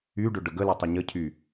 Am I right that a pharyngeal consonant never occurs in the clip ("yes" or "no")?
yes